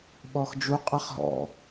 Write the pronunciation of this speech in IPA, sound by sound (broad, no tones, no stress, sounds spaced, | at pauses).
ɓ ɔ x d͡ʒ u qʼ a χ ɦ ɔ̰